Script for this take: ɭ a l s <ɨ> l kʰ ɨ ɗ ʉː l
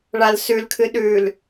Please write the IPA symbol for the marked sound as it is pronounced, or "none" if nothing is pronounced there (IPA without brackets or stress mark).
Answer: ʉ